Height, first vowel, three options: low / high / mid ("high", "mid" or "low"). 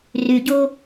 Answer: high